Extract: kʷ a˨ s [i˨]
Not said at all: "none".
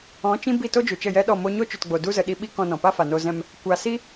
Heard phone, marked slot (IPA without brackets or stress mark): i˦